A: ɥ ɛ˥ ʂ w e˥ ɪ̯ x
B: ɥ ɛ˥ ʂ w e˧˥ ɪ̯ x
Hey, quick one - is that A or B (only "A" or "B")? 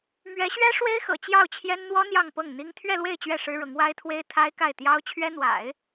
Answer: A